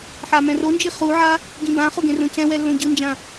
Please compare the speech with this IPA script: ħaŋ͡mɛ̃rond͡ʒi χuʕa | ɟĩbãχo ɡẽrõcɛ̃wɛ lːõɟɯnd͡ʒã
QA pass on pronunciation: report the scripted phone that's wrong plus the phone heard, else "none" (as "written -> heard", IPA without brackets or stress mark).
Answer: ŋ͡m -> m